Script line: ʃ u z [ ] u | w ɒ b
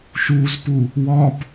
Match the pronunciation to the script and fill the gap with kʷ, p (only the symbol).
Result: p